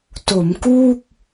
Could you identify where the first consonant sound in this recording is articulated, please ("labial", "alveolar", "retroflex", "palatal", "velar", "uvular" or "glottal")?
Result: alveolar